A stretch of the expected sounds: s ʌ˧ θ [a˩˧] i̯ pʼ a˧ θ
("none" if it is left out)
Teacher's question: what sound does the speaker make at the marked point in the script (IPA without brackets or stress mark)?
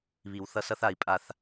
a˩˧